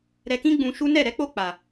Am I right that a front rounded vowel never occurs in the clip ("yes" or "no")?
yes